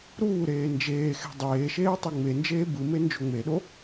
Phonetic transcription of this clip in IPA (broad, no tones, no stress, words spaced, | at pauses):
ɾuːɾeː nd͡ʒeːxe̤ dˤeːʃeː tˤiŋ͡mend͡ʒeː bɯme nd͡ʒoŋ͡meɗo